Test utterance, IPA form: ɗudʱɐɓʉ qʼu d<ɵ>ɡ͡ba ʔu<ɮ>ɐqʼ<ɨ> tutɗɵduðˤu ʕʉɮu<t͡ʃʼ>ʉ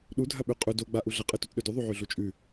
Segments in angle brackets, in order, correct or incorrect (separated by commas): incorrect, correct, correct, correct